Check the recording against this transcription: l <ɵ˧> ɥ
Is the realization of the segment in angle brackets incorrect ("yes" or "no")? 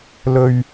no